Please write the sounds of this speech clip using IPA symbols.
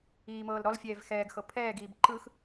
iːmɤːlɾɔlfʲɛːv xɛːɡxɤ pʰɛːɡiːb ǃɯx

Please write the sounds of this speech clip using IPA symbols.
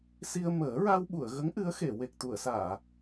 si˧ə̯ məː˨˩˦ɹa˧wɓu˨˩˨ə̯ɣə˧˥ŋ ʔɨ˧˥ə̯xe˨˩˨ we˨˩k̚t̪u˨˩˨ə̯saː˨˩˨

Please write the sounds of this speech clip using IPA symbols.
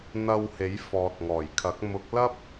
n̪ɐ˨w he˨˥jfɔː˨t̚ŋɔː˨˩jkʰɐ˨˥k̚ mʊ˨˥k̚lɐ˥p̚

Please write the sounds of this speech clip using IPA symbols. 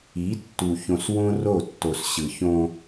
i˨˦tːu˨ çõ˨swõ˦ro˦˨tːo˨s ɕɯ˨çõ˦

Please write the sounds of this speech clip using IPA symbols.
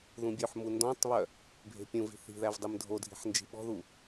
ðũbʲɵħmu ndɔ̃tˤβœ | bʱe̤pʲũvi̤ θi̤ðæv dˤemdʱodʱi̤ħ nd͡ʒi̤ɓɔ̤ðu

